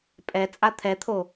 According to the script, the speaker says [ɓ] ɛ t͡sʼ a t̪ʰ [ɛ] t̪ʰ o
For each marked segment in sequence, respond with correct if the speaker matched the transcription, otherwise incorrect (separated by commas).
incorrect, correct